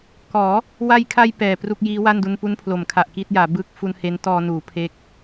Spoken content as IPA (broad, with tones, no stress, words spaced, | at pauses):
kɔː˩˦ | wa˧jkʰa˧j pɛː˨˩ pru˥˩k̚ jiː˦˥wa˥˩ndu˧n pu˦˥npʰlo˩˦mkʰa˨˩ʔ kiː˥˩t̚jaː˩˦ bɯː˥˩k̚ fu˧nhe˦˥ntɔː˧nuː˩˦ pʰe˦˥k̚